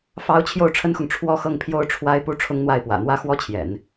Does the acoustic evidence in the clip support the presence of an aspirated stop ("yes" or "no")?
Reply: yes